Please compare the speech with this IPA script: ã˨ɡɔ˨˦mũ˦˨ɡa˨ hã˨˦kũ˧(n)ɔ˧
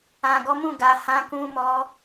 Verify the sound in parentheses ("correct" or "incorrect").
incorrect